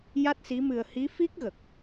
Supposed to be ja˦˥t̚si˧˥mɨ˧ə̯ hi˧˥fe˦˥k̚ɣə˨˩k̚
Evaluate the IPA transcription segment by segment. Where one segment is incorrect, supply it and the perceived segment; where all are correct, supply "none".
e˦˥ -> i˦˥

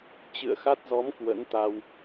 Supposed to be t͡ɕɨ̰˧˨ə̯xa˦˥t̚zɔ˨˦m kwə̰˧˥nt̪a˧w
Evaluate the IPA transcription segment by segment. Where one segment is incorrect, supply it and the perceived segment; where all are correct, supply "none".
none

